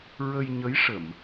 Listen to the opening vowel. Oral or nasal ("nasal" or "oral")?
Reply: oral